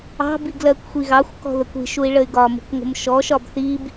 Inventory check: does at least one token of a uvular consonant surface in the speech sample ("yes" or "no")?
no